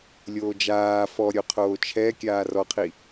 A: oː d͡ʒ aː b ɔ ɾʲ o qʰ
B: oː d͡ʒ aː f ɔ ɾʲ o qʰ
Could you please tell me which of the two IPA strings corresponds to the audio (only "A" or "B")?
B